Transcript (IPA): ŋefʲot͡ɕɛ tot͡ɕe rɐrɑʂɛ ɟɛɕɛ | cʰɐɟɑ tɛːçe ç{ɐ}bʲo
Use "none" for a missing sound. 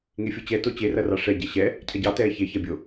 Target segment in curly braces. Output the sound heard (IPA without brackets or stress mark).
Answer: ɐ